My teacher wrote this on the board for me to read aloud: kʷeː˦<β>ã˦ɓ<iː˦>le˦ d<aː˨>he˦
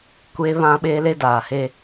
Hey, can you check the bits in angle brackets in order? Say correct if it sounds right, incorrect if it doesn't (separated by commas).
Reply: correct, incorrect, correct